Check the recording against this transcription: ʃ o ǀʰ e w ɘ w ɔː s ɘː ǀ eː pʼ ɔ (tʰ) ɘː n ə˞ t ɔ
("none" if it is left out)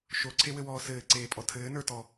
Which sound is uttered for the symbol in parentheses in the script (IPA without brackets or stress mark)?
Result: tʰ